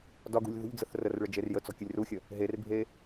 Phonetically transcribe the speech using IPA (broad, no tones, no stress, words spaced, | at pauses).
dɒɡṳlʲ ðṳʎd͡zəθ rərɭə d͡ʒerjət͡sɔ̤ kʲəlʲruxʲə | ɦerbʱe